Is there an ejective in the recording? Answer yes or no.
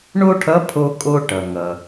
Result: yes